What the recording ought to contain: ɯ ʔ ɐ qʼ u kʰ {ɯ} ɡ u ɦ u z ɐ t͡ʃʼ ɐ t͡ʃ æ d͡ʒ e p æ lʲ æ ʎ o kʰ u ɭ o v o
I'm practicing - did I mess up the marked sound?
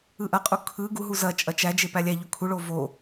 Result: no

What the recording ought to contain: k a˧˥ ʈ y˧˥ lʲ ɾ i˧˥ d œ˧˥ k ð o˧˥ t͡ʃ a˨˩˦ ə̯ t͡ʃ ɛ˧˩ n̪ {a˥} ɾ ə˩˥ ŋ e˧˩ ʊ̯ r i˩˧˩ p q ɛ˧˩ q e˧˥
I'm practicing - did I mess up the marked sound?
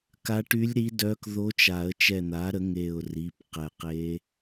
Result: yes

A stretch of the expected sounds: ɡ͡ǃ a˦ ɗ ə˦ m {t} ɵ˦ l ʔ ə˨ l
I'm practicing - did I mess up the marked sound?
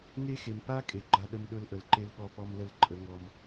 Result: yes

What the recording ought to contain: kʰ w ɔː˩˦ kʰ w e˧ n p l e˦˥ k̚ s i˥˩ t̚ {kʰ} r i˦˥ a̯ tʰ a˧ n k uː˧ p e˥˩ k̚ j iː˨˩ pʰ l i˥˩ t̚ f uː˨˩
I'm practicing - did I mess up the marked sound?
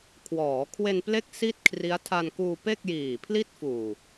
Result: no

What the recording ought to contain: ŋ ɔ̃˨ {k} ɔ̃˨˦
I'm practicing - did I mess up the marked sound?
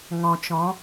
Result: yes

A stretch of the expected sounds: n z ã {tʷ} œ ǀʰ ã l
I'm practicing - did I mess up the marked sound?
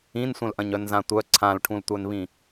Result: no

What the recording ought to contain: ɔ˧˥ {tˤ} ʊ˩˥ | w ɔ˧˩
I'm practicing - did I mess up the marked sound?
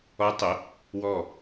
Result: no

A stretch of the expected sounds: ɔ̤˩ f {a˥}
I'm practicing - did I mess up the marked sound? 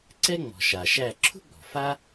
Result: no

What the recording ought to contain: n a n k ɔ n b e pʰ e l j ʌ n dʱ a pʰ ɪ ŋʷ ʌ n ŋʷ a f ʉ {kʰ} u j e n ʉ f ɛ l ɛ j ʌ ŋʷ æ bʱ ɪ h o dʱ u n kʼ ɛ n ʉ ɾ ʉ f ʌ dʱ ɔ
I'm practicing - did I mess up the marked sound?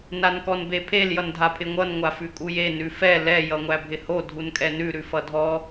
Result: yes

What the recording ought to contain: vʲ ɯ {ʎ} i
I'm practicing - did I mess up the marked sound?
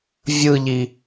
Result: no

